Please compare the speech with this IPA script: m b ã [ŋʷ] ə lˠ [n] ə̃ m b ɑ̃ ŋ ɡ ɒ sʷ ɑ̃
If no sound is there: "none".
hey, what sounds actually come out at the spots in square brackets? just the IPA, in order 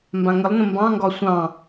ŋ, n

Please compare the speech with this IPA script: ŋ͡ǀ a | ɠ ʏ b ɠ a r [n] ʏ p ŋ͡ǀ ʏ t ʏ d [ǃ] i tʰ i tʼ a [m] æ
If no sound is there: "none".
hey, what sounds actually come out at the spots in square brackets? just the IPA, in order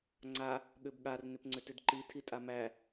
n, ǃ, m

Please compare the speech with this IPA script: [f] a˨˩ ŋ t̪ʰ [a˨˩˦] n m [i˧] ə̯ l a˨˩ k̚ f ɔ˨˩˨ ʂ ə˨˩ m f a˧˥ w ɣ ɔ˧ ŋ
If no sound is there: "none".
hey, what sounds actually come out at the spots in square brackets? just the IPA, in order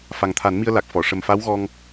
f, a˨˩˦, i˧

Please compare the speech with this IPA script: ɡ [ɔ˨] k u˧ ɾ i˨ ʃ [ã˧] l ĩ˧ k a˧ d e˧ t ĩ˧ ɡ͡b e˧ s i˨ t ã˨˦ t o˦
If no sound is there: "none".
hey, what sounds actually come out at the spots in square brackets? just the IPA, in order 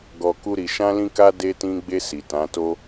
ɔ˨, ã˧

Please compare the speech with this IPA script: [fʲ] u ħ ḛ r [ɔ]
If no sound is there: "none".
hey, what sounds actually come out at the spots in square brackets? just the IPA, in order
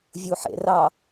vʲ, ɑ

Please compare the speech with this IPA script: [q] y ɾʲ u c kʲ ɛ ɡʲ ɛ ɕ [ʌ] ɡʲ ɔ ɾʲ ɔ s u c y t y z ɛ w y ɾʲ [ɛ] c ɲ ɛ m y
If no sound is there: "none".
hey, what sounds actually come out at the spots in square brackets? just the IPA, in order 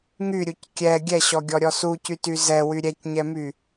ŋ, ɔ, ɛ

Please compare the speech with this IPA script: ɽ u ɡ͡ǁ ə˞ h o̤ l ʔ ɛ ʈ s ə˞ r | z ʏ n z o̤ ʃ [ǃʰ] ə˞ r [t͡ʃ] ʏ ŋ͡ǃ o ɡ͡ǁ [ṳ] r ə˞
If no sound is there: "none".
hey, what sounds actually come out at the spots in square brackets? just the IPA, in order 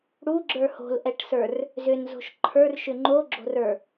ǃʰ, ʃ, o̤

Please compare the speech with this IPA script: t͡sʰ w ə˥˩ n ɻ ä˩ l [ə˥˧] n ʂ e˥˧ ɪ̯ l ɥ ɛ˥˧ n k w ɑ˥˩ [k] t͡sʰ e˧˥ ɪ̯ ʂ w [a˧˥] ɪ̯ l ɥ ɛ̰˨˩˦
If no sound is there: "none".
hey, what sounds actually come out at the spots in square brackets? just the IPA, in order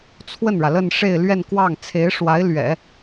ə˥˧, ŋ, a˧˥

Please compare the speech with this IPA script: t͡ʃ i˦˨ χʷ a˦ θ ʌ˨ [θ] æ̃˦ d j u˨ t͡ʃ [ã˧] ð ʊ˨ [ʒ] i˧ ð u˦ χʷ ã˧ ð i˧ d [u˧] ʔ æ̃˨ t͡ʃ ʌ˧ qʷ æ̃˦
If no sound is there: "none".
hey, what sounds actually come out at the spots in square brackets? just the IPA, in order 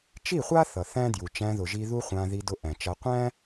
θ, æ̃˧, ʒ, ʊ˧

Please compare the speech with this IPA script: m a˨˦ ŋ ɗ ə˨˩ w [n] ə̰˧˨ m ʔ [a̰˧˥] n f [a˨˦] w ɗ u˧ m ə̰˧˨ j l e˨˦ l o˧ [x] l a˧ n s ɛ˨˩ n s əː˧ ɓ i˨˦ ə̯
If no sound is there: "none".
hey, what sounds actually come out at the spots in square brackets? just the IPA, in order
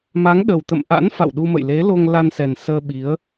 t̪, a̰˧˥, a̰˧˨, ŋ

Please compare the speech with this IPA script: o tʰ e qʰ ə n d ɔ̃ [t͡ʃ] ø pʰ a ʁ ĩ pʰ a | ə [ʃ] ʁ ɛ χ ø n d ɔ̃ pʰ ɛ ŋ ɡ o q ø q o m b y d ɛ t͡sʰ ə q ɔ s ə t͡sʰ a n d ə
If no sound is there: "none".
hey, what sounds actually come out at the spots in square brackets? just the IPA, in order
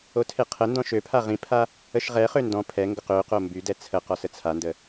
ʃ, ʃ

